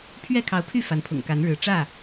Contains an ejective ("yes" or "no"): no